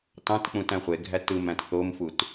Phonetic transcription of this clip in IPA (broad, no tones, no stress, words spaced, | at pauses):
tɑ̃tk͡pũt æ̃χʷeɡʱæ tɯmæ̃t θomfut